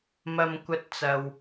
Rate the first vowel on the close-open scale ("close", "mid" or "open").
open